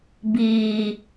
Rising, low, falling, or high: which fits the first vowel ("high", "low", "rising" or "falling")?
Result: low